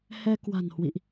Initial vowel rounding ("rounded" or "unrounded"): unrounded